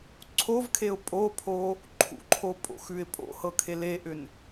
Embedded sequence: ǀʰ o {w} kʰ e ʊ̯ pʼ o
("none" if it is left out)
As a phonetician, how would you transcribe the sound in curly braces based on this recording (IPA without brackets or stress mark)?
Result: v